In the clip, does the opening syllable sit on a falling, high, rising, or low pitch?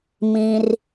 low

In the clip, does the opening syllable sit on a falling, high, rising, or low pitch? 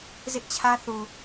high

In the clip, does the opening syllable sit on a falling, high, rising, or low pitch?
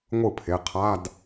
falling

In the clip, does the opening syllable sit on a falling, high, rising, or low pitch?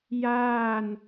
falling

